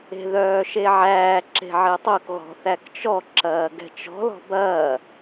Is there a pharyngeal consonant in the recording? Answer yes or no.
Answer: yes